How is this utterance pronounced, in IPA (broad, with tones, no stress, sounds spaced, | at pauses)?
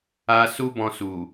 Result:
a˦ s u˦ b ɔ̃˧ s u˨